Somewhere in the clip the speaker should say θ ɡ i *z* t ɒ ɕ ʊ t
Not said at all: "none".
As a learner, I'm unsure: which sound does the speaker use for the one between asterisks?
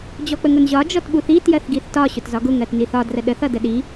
θ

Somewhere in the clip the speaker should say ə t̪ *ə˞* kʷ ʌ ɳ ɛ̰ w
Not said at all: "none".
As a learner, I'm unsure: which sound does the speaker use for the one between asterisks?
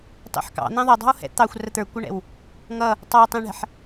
ə˞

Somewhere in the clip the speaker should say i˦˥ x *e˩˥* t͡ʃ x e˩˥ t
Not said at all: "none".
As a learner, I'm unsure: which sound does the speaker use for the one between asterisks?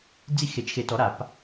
e˩˥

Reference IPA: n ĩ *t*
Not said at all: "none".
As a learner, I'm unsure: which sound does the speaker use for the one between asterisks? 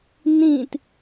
t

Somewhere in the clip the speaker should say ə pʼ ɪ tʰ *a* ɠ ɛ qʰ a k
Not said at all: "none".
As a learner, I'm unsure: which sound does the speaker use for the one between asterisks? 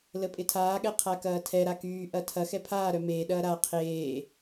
aː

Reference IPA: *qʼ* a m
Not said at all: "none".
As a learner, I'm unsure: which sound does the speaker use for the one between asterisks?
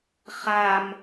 χ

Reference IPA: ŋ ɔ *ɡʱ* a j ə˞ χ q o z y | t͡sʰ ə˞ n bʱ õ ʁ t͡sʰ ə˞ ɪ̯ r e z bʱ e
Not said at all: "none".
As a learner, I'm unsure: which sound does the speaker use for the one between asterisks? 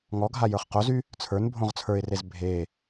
ɡʱ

